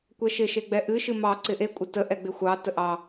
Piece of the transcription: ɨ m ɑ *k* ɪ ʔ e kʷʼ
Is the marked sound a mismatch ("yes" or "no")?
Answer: yes